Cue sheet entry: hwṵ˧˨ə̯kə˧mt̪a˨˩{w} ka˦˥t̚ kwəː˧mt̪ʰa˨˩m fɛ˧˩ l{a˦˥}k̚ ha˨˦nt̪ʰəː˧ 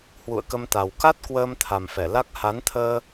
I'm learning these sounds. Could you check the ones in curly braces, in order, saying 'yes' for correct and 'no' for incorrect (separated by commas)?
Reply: yes, yes